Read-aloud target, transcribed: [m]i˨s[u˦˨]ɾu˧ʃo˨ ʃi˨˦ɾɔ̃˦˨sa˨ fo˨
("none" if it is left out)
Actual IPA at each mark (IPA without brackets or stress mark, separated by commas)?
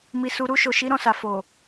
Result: m, u˨